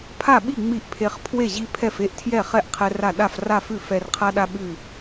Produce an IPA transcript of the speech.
pʰ a˥˨ ɓ i˥˨ ŋ͡m i˥˨ ʔ pʰ e˦ χ pʰ w e˥˨ ʑ i˦ pʰ ɛ˥˨ f e˥˨ ʔ tʰ j ɛ˥˨ χ ɛ˥˨ ʔ qʰ ɛ˦ r a˥˨ ɗ a˥˨ f r a˥˨ f ʉ˥˨ f ɛ˦ r qʰ a˦ ɗ a˦ ɓ ʉ˥˨

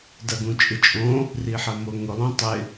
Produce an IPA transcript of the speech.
d ɐ ɡ ũ t͡ʃʼ ɪ t͡ʃʼ õ | r i ħ ɐ m o ŋ ʊ lˠ õ tˤ ɪ

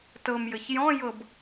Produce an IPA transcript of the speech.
t ɤ m j ɘ ç j ɔ̃ j ɤ b

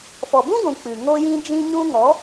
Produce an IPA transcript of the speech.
f ɔ˨ b ũ˦ ɡʷ ũ˨ k͡p ɨ˨ ŋ o˦ j ĩ˦ d͡ʒ ĩ˦ ɲ ũ˦ ŋ ɔ˨˦

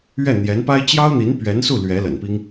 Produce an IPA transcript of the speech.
ɥ ɛ˥˩ n̪ j ɛ˧˥ n p a˥ ɪ̯ t͡ɕ j ɑ˥ ʊ̯ n̪ i˧˥ n p ɥ ɛ˧˥ n s u˥˩ l ɥ ɛ˧˥ l ə̰˨˩ n p i˥ ŋ

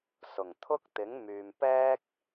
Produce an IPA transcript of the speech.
s ʊ˨˩ ŋ t̪ʰ ʊ˥ k̚ t̪ ɪ˨˥ ŋ m yː˨ m p ɛː˥ k̚

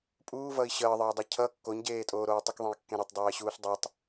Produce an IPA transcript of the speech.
pʼ uː v ʌ i̯ ɕ əː ðˤ əː dˤ ʌ cʰ ʌ kː o ɲ ɟ eː tʼ oː ɾ oː tˤ ə k ðˤ ẽ i̯ kː ẽ ɾ e tˤ dˤ eː ɕ uː ɬ dˤ œ tˤ

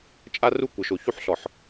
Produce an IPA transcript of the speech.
t͡ʃʼ a˦ r u˦ kʷ ə˨ ʃ o˨ ç u˦˨ ħ ɬ ɔ˨ ħ

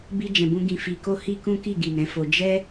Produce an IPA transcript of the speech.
b i˧ d͡ʒ ɛ̃˨ b ũ˧ ɡ ĩ˧ f i˧ k o˦ h i˦ k ũ˦ k i˦˨ ɡ i˨ n ɛ̃˨˦ f o˧ d͡ʒ ɛ˦

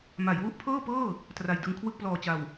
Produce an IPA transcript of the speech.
m a˩˦ j w u˦˥ ʔ pʰ ɤː˥˩ p ɤː˥˩ | t r a˨˩ j d ɯ˧ ŋ kʰ w ɯ˥˩ k̚ p l ɔː˨˩ t͡ɕ a˨˩ w

